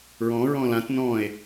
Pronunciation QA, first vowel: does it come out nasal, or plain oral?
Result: nasal